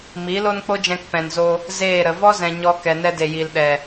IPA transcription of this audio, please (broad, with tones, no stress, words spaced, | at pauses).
mi˨˦lo˦nk͡po˦d͡ʒɛ̃˧k pɛ̃˨nzo˧ | zeː˦˨ɾə˨ vɔ˦zɛ̃˨ ɲɔ˧ kɛ˨nɛ˧de˨ ji˨lɗɛ˨